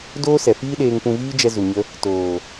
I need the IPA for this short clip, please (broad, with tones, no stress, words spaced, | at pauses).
doː˦sɛ˨fiː˦ɗeː˧ŋ pũ˧viː˦d͡ʒɛ˧ zu˨ɲə˧ | toː˨